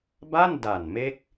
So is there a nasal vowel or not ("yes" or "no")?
no